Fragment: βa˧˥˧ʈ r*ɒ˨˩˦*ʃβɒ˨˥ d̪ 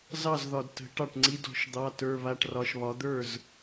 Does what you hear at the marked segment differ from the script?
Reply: yes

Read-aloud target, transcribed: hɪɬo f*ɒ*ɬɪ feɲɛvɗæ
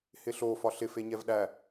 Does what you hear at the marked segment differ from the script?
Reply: no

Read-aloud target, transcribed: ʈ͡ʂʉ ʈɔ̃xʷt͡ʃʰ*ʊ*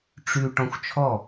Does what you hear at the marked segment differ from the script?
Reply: yes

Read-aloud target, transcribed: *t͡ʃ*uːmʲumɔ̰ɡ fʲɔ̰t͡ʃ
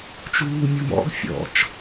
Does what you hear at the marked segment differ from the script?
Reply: no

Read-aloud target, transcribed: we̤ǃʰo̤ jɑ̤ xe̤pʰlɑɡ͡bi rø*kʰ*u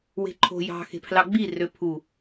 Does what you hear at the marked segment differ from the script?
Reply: yes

